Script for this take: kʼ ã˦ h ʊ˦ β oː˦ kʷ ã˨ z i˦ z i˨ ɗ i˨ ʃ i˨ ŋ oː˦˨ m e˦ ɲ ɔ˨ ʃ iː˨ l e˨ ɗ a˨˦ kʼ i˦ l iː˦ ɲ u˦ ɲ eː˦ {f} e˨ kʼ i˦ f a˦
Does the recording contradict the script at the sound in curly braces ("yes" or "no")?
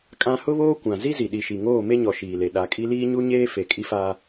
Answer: no